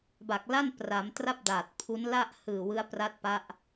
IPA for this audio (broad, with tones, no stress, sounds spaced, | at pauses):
b a˨˩ k̚ l a˥˩ n p r a˩˦ m t r a˥˩ p̚ d a˨˩ t̚ pʰ u˦˥ n l a˥˩ ʔ h ɯː˨˩ w ɯ˦˥ a̯ p r a˦˥ t̚ p a˦˥ ʔ